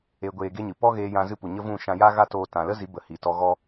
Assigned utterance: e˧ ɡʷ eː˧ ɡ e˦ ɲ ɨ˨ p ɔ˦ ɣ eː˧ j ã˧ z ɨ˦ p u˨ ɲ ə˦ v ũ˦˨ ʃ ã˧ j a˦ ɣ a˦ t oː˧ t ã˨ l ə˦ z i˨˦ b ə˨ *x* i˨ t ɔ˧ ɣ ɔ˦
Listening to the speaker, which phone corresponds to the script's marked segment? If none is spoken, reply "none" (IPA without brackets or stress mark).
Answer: h